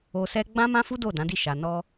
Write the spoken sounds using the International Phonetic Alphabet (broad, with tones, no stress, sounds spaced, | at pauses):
o˧ s ɛ˦ ɡ͡b ã˦ m ã˦ f u˦ d o˦˨ d ã˨˦ d i˦˨ ʃ a˨ n ɔ˧